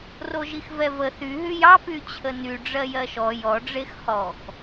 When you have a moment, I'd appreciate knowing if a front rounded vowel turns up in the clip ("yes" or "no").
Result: yes